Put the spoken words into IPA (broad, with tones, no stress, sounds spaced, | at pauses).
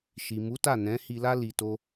ʃ i˨ m u˨˦ t a˦˨ n ɛ̃˨˦ h i˧ l a˦ l i˧ t o˦